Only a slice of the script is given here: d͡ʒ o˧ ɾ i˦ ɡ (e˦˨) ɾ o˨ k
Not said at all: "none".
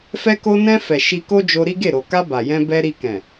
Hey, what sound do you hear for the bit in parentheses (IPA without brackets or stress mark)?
e˦˨